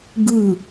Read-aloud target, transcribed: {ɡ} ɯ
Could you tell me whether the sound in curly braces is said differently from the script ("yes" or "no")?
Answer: no